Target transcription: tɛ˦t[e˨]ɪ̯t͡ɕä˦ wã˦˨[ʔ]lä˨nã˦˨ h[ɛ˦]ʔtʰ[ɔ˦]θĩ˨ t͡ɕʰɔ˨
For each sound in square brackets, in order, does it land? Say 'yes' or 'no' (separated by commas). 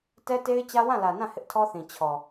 no, no, no, yes